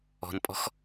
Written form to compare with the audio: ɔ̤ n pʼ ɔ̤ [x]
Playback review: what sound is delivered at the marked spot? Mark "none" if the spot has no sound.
x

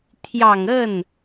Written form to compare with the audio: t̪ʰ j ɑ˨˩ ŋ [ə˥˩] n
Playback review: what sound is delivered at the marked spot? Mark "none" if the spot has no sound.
ə˥˩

